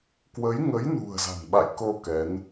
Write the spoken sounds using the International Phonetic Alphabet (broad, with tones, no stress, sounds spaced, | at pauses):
k w ə˨˦ j ŋ ə˨˦ j n ṳ˨˩ ə̯ z a̤˨˩ n ɓ a̰˧˨ j k o˧ k ɛ˨˦ n